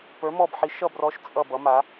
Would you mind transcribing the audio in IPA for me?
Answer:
p ə˞˨˥ m ɔ˦˨ b ħ i˨˥ ʃ ʌ˦˨ b r ɔ˨˥ ʃ t͡sʼ ʌ˦˨ b ʌ˨˥ m a˨˥

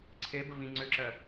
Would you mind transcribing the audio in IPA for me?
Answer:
ǀʰ e b ə v ĩ ŋ͡ǀ ʏ ǁ ɜ

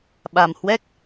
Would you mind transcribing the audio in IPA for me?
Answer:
ɓ a˨˩ m h w ɛ˦˥ k̚

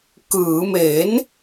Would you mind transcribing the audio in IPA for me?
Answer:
k ɯː˩˦ m e˩˦ n

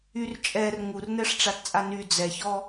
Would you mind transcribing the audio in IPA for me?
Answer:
y r t͡ʃʼ ɛ r ŋ u r n ɛ ʂ ʈ͡ʂ a t t͡sʼ a n y d͡z ɛ ç ɔ

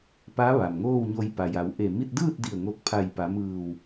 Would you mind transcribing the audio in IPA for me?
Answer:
p a˧˥ ʋ a˩ m ŋ oː˥˨ w ɲ o˧ j p a˩ j a˩˧ w ʔ e˧˩ m i˥˨ t̚ d ɯː˥˨ t̚ d i˧˩ ə̯ ŋ o˧˩ k̚ pʰ a˧˩ j p a˩˧ m ɯː˧˩ w

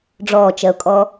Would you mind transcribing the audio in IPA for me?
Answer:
ɖ͡ʐ ɔː t͡ʃ ɜ ʊ̯ kʼ ɔ

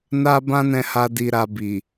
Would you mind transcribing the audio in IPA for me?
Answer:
n a˦ b ã˦ n ɛ̃˧ h a˧ d i˧ ɾ a˧ b i˨

